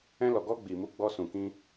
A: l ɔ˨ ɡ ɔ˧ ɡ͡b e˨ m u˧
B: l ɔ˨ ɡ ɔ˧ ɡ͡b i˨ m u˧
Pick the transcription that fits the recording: B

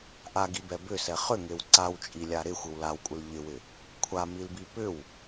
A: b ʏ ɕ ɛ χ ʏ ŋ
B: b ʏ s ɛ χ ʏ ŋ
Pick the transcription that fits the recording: B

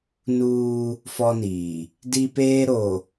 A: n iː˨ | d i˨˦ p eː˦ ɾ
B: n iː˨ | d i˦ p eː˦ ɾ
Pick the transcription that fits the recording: B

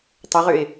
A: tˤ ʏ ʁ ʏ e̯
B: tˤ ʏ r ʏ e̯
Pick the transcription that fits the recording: A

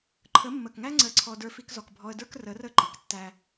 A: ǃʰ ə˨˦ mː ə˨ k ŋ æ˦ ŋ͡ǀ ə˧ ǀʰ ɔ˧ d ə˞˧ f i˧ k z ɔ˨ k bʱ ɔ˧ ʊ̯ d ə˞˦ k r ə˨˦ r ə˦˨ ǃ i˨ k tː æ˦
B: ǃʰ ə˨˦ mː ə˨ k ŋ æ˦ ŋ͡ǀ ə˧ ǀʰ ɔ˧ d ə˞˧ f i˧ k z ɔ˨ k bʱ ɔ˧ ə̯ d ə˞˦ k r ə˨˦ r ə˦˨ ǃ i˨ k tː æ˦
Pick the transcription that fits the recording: B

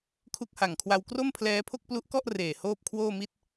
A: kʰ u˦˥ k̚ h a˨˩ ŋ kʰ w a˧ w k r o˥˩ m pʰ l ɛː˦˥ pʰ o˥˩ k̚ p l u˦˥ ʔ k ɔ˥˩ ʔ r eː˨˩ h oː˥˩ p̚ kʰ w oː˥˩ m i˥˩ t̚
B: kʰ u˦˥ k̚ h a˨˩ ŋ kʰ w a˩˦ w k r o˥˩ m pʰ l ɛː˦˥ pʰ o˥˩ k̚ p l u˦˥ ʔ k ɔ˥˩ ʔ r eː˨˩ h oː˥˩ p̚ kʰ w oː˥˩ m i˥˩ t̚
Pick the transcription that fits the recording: A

